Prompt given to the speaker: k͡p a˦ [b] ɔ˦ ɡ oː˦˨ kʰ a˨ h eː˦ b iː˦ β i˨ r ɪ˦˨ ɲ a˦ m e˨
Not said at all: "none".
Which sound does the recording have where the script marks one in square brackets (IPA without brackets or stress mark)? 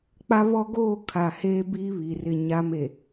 β